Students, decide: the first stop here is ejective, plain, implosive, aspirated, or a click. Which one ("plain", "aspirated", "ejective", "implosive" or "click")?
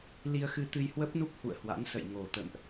plain